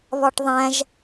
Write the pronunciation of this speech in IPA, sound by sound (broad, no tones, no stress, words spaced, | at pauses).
βɒʈðˤæ̃ʒ